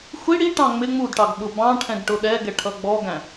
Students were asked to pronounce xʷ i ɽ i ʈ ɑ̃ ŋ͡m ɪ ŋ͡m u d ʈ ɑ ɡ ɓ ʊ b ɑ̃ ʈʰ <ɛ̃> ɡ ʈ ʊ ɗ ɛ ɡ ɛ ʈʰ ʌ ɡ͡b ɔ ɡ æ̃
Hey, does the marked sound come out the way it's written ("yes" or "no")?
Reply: yes